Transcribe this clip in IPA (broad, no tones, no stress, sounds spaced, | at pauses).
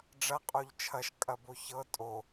ɖ͡ʐ ɐ qʼ o ʎ t͡ʃʰ ɐ ʃ kʼ ɐ b o ç ɤ tʼ o